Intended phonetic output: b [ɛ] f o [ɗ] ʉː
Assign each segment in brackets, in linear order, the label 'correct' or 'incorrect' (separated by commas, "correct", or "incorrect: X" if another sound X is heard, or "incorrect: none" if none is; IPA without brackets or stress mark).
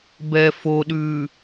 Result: correct, correct